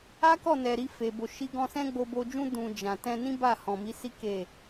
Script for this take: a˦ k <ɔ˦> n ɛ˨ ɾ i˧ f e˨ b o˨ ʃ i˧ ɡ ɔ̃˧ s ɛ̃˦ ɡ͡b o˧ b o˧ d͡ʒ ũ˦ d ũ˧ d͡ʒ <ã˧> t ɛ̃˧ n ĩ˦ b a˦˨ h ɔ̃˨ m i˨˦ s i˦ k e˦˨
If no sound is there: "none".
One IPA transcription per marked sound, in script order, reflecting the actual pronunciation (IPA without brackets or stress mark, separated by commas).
ɔ˦˨, ã˨